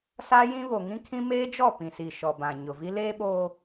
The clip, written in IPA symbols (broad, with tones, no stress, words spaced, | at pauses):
sa˦jĩ˦ βo˨ŋĩ˦kʰĩ˦ meː˦d͡ʒɔ˦˨ pĩ˨si˨ ʃɔ˨bã˨ ɲʊ˨vi˦ leː˦ɓoː˦